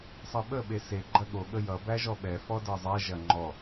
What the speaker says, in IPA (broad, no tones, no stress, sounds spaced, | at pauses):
sˤ ʌ ɓ ə ɓ e s e ɡ͡ǃ ɐ ɠ o ɠ ə j ʌ b æ ʒ ɔ ɓ ɛ f ɔ d ɤ zˤ ɛ ʒ ɐ ŋ͡ǃ ɔ